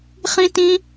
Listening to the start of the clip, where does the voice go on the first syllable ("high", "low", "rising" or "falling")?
high